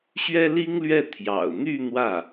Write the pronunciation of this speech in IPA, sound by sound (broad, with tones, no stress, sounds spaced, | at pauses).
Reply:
ɕ ɥ ɛ˥ l i˥ ŋ l ɥ ɛ˥˩ t̪ʰ j ɑ̰˨˩ ʊ̯ n̪ y˥˧ n̪ w ä˥˩